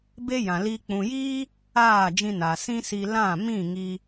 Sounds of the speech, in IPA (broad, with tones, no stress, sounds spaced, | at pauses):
b e˦ j ã˨ l i˧ k͡p ũ˨ j iː˦ | aː˦˨ d͡ʒ ĩ˧ n a˨ s ĩ˦ s i˧ l ã˦˨ m ĩ˦˨ ŋ i˧